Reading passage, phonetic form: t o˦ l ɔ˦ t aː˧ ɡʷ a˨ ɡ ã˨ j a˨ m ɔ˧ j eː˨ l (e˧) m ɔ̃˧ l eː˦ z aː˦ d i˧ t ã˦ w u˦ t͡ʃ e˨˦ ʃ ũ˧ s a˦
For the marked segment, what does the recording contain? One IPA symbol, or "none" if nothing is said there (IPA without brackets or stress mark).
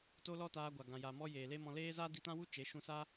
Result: e˦